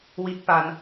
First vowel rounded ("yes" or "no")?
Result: no